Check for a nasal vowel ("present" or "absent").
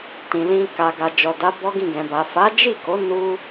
present